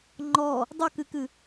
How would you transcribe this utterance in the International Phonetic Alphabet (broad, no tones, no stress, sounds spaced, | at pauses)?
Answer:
ŋ͡ǃ ɔ | dˤ ɨ k ɨ k ɨ